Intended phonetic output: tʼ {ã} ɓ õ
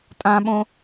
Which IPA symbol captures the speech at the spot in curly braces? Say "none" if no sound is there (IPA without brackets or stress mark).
ã